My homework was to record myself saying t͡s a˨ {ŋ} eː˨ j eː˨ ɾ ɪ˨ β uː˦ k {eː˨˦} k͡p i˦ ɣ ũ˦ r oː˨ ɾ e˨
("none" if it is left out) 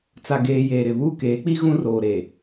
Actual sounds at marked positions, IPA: ɡ, eː˨˦

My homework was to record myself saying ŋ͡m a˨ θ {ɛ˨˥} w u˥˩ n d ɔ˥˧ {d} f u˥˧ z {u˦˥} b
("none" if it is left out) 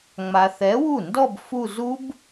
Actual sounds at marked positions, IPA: ɛ˨˥, b, u˦˥

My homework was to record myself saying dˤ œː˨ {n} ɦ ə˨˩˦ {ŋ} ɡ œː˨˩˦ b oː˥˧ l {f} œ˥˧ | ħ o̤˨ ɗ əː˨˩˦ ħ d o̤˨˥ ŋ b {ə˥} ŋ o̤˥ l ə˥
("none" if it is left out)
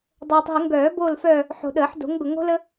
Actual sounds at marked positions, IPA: tˤ, ŋ, f, ə˨

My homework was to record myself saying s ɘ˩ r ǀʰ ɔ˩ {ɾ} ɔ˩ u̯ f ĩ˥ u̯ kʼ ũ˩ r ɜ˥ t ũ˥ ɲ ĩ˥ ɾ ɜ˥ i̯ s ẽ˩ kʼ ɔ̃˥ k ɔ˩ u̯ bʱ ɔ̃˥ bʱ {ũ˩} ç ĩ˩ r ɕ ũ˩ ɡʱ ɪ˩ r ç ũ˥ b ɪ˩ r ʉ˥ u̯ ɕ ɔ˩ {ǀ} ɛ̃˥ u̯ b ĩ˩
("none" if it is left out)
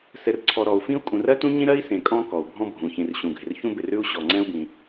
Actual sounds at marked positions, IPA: ɾ, ũ˩, ŋ͡ǀ

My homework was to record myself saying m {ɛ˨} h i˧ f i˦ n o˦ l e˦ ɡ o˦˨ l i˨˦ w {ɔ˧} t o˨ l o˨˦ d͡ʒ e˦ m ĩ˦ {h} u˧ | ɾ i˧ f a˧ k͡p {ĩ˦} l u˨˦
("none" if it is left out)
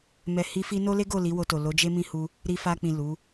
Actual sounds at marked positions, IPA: ɛ˨, o˧, h, ĩ˨

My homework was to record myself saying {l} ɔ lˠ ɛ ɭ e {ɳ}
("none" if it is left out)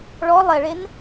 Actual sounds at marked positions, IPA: ɭ, n

